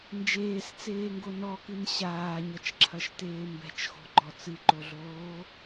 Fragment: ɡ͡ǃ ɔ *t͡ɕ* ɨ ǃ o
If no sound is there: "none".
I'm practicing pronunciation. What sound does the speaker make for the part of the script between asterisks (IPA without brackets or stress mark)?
t͡s